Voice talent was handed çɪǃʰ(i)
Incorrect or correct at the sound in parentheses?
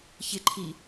correct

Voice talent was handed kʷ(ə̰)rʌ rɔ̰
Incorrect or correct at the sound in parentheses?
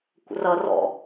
correct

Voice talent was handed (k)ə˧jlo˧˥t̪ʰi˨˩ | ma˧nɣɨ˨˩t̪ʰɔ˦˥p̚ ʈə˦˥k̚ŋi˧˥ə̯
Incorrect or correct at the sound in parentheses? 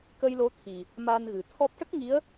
correct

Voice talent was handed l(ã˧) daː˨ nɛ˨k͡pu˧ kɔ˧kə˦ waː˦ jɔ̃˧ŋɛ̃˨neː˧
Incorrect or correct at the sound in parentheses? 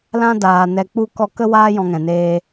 correct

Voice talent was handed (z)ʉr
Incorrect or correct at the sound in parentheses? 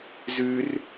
correct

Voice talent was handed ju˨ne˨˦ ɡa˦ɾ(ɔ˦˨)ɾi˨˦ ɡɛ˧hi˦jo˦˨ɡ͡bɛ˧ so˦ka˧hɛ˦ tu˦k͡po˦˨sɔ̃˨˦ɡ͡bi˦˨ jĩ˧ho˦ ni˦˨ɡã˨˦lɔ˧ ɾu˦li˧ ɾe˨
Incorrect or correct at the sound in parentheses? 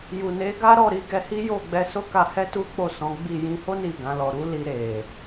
correct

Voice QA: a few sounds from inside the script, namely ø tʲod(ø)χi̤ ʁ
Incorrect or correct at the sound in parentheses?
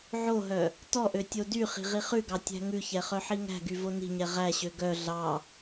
incorrect: y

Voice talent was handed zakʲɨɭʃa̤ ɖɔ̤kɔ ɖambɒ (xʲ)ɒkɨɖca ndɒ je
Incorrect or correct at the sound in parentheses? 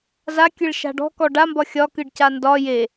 correct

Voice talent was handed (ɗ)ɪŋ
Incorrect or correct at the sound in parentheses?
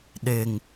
correct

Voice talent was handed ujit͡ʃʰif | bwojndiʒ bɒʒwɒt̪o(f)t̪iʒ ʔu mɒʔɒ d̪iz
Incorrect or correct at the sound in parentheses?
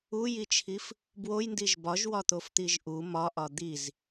correct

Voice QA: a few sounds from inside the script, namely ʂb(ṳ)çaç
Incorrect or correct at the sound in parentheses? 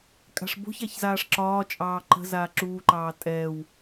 incorrect: o̤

